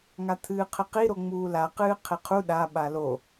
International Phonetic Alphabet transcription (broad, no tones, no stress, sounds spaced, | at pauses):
ŋ a t̪ʰ ɨː qʰ ɘ q i ɾ o ŋ͡m uː l a q ɨː qʰ e qʰ u ɗ a ɓ a l o